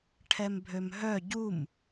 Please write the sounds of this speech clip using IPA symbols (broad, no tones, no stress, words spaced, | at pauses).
ʈʰɛmbʱømɦœ ɟum